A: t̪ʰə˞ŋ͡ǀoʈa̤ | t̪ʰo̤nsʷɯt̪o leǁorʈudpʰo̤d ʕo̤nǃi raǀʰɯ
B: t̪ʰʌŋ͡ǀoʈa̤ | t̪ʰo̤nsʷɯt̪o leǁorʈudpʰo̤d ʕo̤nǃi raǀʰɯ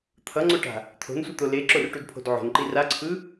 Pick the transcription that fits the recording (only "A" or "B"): B